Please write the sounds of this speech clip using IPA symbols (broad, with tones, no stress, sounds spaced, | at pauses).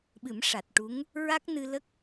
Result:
ɓ ɨ˨˩˦ m ʂ a˨˩ t̚ ʈ u˧˥ ŋ | ɹ a˦˥ k̚ n ɨ˧ l ə˦˥ k̚